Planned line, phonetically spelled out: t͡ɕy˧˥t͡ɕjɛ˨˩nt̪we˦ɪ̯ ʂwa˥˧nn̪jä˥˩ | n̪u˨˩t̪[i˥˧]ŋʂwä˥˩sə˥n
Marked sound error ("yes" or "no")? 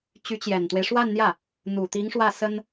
yes